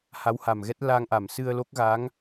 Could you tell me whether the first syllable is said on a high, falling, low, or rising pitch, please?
rising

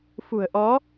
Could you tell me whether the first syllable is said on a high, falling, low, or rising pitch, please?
low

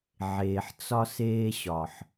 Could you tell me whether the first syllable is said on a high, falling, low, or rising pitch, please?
low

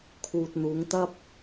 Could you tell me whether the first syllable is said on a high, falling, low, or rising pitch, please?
low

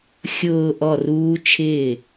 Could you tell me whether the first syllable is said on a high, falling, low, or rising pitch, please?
low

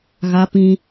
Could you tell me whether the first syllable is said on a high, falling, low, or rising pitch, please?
high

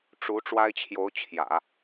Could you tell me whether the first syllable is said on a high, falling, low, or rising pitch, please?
rising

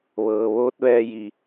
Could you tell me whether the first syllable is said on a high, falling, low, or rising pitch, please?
low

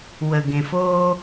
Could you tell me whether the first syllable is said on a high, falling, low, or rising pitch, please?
low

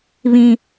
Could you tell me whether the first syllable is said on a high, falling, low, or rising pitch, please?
high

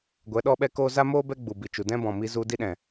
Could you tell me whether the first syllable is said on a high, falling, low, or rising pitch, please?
rising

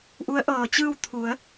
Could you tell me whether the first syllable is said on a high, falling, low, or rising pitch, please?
rising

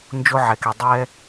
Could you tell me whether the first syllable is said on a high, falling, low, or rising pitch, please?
high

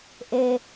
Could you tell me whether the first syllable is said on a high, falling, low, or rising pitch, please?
low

